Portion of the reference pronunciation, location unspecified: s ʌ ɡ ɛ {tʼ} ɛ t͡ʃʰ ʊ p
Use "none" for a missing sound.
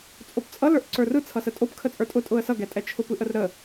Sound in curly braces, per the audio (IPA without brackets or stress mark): tʼ